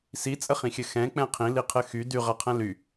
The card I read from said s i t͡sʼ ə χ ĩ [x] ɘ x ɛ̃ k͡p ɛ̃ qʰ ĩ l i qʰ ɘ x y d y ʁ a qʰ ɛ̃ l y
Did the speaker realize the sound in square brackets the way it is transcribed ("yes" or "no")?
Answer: no